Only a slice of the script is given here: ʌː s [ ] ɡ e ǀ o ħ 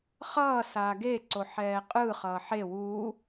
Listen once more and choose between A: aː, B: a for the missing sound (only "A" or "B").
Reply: A